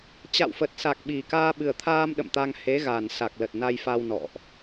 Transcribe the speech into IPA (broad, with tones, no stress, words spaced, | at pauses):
t͡ɕa̰˧˨wfə˨˩t̚sa˨˩k̚ ɓi˨˩kaː˧ ɓɨ˨˩ə̯t̪ʰaː˧m ɗə̰˧˨mt̪a˧ŋ he˨˦ɣa˨˩nsa˨˩k̚ lə˨˩t̚na˧jfa˧w nɔ̰˧˨ʔ